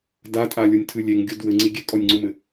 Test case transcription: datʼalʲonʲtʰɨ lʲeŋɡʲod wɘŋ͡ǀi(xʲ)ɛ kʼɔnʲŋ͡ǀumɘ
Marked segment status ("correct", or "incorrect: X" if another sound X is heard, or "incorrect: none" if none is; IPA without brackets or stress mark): incorrect: ɡʲ